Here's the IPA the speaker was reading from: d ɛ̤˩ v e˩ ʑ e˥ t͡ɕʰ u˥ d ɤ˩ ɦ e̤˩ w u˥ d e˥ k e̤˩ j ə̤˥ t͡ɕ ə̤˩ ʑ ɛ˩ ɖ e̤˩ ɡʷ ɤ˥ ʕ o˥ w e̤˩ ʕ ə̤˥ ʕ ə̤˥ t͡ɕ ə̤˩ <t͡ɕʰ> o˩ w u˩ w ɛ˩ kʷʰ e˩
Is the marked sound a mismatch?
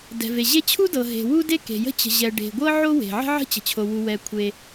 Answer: no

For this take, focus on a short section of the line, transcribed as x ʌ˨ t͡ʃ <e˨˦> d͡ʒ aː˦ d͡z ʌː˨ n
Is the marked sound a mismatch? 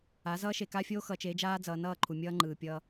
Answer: no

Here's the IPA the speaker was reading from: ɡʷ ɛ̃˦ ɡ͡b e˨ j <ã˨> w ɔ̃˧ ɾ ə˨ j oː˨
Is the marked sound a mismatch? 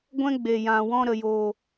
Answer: no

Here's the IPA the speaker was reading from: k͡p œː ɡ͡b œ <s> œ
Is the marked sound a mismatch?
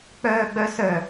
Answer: no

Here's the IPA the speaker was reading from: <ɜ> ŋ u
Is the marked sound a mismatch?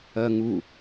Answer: no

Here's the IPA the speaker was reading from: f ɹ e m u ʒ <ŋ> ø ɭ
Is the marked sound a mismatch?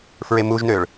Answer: yes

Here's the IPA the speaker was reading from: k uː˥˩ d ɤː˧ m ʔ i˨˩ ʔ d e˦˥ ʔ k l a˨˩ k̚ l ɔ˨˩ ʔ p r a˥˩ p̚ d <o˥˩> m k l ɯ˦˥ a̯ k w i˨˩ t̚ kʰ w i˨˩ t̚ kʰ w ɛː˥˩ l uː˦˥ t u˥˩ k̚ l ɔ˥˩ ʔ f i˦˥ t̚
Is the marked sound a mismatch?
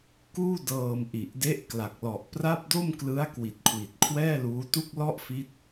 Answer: no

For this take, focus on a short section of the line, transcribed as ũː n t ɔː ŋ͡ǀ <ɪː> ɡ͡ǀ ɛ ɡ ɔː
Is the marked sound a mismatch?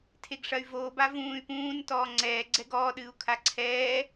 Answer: yes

